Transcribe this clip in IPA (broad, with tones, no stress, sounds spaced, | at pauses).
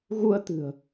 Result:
ɣ u˧ ə̯ t̪ ɨ̤˨˩ ə̯